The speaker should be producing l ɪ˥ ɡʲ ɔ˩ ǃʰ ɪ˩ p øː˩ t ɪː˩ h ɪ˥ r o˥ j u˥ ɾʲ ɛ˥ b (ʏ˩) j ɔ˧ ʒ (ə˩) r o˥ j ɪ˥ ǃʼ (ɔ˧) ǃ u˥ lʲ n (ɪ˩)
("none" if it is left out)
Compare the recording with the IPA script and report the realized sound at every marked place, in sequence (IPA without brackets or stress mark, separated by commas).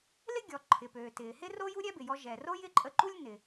ɪ˩, ɛ˩, ə˧, ɪ˩